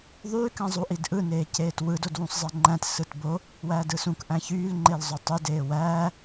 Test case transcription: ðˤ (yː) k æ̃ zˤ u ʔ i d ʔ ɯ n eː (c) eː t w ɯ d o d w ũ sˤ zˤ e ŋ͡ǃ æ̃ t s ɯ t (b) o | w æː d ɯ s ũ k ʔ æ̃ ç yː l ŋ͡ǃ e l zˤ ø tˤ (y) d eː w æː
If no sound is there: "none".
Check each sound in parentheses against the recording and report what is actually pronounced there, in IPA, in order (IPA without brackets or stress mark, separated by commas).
yː, c, b, y